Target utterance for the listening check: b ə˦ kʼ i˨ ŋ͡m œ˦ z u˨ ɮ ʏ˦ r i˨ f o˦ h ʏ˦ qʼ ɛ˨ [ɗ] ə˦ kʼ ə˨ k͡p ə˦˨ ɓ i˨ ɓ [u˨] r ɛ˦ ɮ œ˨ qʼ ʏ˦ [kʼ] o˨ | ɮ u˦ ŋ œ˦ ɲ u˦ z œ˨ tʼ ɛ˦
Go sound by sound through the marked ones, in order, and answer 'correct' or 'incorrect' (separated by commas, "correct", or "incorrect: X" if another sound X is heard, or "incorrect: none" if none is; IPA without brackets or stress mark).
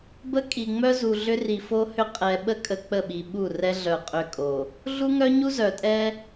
incorrect: ɓ, incorrect: u˦˨, correct